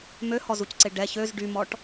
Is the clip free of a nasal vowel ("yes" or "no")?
yes